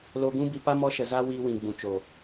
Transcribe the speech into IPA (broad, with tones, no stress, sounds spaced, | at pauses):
l o˧ ɡ ũ˦ b i˧ p a˦ m ɔ˧ ʃ ə˨ z a˧ w iː˧ w ĩ˨ ɡ͡b ũ˨ t͡ʃ o˨